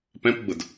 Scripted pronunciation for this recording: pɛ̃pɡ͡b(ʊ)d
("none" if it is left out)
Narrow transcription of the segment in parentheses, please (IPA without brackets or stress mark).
ʊ